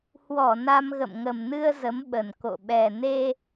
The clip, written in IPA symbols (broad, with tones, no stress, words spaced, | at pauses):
hwɔ˧˩ na˧mɣə̰˧˨m ŋə˨˩m nɨ˧ə̯ zə˨˦mɓə˨˩n ko̰˧˨ ɓɛ˨˩ ne˧